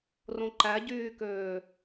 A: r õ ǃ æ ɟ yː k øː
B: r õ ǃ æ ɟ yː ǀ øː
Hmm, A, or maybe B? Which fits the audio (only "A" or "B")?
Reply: A